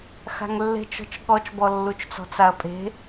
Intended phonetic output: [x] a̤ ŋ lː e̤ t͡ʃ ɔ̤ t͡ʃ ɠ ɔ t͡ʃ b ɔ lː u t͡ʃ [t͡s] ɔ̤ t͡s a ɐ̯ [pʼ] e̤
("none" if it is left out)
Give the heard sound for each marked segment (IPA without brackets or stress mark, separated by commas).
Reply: x, t͡s, pʼ